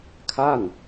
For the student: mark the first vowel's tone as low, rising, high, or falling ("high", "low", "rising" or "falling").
falling